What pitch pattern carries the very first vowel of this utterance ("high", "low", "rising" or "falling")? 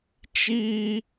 high